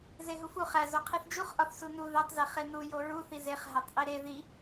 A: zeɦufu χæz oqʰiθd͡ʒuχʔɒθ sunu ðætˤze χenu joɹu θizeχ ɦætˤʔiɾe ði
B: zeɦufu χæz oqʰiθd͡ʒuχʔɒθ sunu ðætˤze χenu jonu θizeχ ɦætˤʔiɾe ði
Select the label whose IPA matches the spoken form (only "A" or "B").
A